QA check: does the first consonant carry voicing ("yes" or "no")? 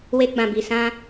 yes